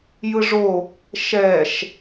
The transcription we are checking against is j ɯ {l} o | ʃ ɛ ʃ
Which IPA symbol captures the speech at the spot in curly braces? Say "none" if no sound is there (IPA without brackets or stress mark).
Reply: ʐ